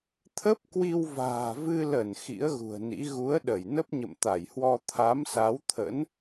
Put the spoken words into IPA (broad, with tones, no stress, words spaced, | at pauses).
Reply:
t̪ʰə˦˥p̚kwi˧wva̤ː˨˩vɨ˧ lə˧˩n xḭ˧˥ə̯ɣṳ˨˩ə̯nḭ˧˥ ɣu˨˦ə̯ɗə˧˩j nə˦˥p̚ɲə̰˧˨mt̪a˧˩jhwɔ˧ t̪ʰa˨˦msa˨˦wt̪ʰə̰˧˥n